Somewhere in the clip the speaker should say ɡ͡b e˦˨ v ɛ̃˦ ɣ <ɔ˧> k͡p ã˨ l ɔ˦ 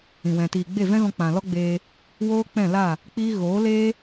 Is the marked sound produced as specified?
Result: no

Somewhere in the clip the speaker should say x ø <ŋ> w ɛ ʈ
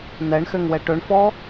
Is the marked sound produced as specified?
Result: yes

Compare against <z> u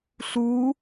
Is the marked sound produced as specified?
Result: no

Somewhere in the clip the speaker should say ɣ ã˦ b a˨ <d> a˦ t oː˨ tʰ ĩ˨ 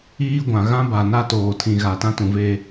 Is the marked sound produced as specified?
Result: no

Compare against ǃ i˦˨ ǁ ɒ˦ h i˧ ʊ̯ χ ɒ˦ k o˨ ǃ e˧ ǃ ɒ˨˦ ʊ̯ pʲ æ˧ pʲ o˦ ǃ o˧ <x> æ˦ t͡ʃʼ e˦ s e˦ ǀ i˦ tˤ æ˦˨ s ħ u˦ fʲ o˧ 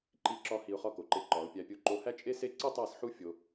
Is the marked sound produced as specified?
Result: no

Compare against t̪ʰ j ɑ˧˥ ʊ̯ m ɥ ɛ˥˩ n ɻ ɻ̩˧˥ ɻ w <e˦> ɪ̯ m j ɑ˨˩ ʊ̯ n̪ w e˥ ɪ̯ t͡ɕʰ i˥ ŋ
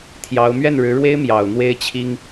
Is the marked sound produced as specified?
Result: no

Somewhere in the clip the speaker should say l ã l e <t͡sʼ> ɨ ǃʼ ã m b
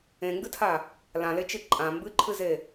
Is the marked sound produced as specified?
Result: no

